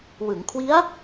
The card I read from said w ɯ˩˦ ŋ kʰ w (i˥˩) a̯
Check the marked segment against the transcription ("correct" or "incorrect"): incorrect